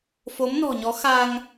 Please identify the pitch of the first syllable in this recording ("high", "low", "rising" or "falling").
rising